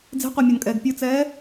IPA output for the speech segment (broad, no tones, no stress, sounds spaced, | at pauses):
d͡z e̤ qʷ a mʲ o n kʼ ɛː ɡ pʲ ɯ t͡s ɛː